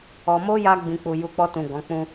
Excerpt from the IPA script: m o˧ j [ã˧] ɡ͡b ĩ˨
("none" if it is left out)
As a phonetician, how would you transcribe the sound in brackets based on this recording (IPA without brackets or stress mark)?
a˧